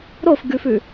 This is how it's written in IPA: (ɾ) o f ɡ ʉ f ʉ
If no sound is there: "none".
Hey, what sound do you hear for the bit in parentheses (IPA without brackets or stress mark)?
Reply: ɾ